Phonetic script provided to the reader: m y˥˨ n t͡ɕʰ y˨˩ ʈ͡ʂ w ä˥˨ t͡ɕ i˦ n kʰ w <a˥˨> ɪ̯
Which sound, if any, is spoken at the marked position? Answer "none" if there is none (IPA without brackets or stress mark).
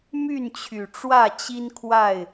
a˥˨